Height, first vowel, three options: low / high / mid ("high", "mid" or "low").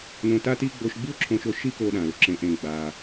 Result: mid